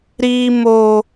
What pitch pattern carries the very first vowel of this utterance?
high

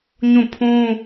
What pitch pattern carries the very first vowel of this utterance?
falling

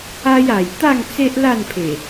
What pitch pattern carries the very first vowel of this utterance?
high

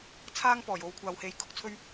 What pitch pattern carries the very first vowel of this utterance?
high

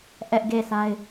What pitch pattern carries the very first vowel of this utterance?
high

